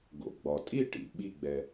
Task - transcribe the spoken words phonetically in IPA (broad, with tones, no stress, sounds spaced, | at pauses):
ɡ o̰˩ ɡ͡b ɒ˩ tʼ i˥˨ ʈ ḭ˩ ɓ i˥˨ ɡ͡b ɛ˩